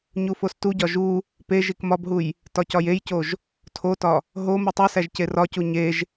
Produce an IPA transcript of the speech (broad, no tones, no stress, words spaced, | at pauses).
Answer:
ɲufostuɟɒ ʒu | pe ʒikmɒbɦuj | tɒcɒjejcoʒ | tʰotɒ | ɦo mutˤesæʒ cerɒcu ɲeʒ